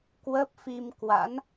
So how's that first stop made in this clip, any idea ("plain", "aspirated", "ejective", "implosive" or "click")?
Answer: plain